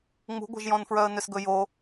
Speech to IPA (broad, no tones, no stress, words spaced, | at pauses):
ŋ͡mṳɡʷɛ̤ʒjɔ̃nfɹœə̯ nʏsɡɵjo